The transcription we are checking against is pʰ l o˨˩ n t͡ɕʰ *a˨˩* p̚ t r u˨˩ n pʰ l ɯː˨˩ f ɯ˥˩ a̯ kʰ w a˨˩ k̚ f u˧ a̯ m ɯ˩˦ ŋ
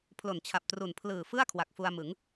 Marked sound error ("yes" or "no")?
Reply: no